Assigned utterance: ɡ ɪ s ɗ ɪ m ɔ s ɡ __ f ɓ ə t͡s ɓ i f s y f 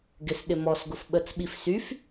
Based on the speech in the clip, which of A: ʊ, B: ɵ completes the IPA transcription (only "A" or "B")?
A